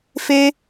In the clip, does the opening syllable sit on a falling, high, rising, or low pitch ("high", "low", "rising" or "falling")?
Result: high